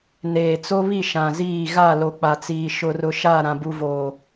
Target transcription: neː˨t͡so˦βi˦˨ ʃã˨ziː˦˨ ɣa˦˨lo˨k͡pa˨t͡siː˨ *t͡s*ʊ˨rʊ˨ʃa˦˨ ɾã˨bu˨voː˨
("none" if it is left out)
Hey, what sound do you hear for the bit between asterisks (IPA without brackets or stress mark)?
ʃ